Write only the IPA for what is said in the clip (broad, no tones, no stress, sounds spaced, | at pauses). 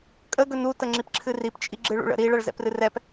kʼ ə ɡ ɵ n u t ə ŋ͡ǁ i p ǁʰ ɨ r i p t͡ʃʼ i ɡ͡ǁ ɨ ɭ ṵ ɭ ə̰ ɾ i ɭ ɐ ɭ z ɛ̰ p r ɨ r ɛ p